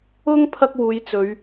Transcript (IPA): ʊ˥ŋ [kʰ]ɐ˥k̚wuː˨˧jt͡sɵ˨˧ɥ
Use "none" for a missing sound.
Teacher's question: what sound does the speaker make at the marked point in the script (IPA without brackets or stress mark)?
pʰ